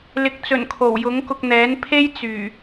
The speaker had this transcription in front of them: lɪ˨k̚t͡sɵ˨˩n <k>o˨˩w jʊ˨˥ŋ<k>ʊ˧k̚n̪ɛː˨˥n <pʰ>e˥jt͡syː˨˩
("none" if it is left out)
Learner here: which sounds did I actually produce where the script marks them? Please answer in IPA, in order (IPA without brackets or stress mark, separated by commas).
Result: kʰ, k, pʰ